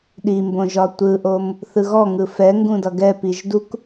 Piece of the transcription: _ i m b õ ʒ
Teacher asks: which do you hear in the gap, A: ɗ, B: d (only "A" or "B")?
A